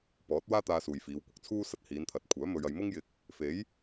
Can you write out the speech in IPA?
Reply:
pɔː˨˥t̚waː˥t̪aː˧ suː˨jfiː˨˧w kʷɪ˧k̚t͡sʰuː˥ sɐ˧t̚hiː˨˧nt̪ʰɐ˨˥t̚ kʷʰœː˨˥ mɵ˧ɥɐ˧j mʊ˥ŋjɪ˧k̚ | fe˨˥j

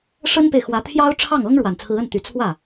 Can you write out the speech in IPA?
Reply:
ʂə˥npe˨ɪ̯xwä˧˥t̪ʰjɑ˥ʊ̯ ʈ͡ʂʰɑ˥˩ŋɤ˥ŋ ɻwa˨˩nt͡sʰɹ̩˧˥ə˥˩n t̪y˧˥ t͡sʰwä˥˩

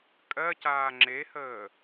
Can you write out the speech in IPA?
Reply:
kʼɜcaː ŋ͡ǁehəː

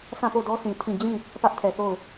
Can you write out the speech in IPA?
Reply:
sã˦˨po˦˨dɔ˦sĩ˨ tʰĩ˦˨ d͡ʑĩ˦˨ | pä˦ʔtʰɛ˨θo˦˨ʊ̯

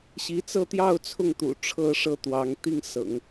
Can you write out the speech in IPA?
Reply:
ɕi˧˥t͡sɤ˥˧t̪jɑ˥˧ʊ̯ t͡sʰʊ˥˩ŋt̪ṵ˨˩ ʈ͡ʂʰɤ˥˩ʂɤ˥ t̪wɑ˧˥ŋ t̪i˥˩ŋsɤ̰˨˩˦ŋ

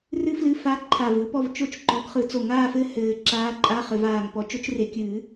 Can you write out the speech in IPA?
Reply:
rɨ˥flɨ˧˥˧fa˧˥˧ ǃʰa˧˩vɯ˥pɔ˥˨v t͡ʃo˥˨t͡ʃǃɔ˨˥ɡχɯ˨˩˦ t͡so˧˩ŋaː˥˨fɘ˥˨ hɘː˨˩˦ ǁaː˧˥˧ǃʼa˧˥˧ χɘ˨˩˦vaː˧˩ŋ pɔ˨˥t͡ʃo˨˥t͡ʃre˨˩˦kʲɨː˨˩˦

